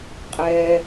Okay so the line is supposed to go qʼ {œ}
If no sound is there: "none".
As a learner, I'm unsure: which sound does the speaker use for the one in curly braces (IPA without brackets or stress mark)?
ɛ